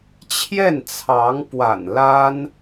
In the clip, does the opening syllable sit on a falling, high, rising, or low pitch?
falling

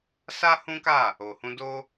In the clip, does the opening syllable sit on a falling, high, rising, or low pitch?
high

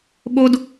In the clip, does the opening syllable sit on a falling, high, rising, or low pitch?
high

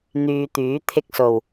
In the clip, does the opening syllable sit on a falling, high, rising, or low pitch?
low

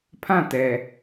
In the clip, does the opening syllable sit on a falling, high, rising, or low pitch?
falling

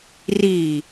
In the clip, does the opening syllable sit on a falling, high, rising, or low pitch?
low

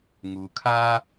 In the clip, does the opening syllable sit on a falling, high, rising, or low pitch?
low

